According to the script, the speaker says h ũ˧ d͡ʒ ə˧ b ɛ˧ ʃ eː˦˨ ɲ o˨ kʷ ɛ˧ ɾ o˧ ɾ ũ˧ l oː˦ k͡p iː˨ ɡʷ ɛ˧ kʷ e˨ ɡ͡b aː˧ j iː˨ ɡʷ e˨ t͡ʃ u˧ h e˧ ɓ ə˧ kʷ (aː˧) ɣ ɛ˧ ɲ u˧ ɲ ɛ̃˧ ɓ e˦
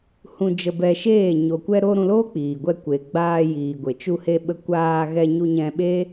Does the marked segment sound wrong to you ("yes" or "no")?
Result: no